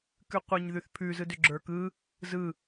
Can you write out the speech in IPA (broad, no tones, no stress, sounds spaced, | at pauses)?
k ʉ qʷ ɯ ɲ ð ʉ θ pʰ ʉ z ɯ d ʏ ɡ͡ǁ ə˞ k ɯ | z ɯ